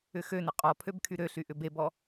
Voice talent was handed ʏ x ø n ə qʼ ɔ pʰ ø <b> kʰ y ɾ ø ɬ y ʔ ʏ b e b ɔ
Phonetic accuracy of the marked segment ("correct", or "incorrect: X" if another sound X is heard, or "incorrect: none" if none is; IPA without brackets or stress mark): correct